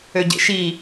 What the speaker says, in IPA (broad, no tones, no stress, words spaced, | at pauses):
øɟḛʃi